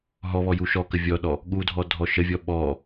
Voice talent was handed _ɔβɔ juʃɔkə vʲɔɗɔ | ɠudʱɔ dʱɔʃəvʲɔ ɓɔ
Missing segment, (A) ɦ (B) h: A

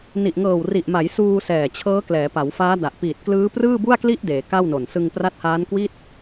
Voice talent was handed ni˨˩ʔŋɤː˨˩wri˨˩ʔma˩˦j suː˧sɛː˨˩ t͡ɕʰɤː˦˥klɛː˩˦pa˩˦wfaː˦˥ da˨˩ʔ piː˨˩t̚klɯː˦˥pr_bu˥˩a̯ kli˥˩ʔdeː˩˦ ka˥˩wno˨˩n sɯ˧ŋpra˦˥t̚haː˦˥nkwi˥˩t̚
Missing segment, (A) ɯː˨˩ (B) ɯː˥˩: B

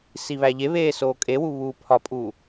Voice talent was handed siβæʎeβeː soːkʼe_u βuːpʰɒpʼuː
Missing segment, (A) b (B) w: B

